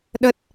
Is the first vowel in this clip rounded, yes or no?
no